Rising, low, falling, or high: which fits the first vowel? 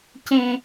low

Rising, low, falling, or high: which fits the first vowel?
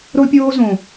high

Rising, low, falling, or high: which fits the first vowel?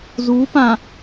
rising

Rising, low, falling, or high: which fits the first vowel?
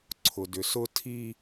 low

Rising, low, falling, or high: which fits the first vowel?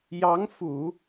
rising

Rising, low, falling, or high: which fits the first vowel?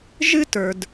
high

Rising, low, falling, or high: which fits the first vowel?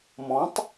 rising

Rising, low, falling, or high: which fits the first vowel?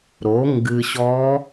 rising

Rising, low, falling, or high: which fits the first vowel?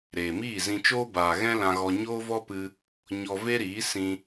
low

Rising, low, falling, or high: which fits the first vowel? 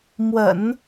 low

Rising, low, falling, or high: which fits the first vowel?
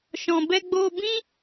low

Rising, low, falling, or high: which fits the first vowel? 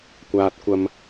high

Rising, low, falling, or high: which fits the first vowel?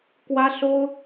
high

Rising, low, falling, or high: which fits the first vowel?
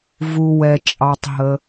low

